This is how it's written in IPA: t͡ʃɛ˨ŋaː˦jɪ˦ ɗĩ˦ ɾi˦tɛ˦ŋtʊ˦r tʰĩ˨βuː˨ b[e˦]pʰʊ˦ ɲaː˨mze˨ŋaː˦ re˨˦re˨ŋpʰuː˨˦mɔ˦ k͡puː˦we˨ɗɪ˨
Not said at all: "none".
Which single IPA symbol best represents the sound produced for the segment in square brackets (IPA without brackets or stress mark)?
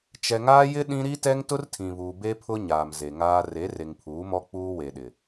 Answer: e˦